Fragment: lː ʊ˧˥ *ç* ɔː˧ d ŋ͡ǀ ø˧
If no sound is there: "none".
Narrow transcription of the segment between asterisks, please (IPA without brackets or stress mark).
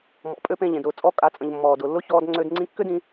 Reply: ç